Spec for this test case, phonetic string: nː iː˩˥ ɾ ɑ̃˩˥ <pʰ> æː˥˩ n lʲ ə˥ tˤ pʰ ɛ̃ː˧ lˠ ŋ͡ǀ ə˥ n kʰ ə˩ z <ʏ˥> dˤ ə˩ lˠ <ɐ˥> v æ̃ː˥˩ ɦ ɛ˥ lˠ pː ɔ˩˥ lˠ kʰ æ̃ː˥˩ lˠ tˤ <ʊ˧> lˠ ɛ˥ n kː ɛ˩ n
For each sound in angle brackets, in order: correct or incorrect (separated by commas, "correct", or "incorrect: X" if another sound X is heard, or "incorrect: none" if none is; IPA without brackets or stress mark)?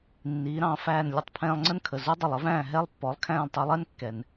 incorrect: f, incorrect: u˥, incorrect: ə˥, correct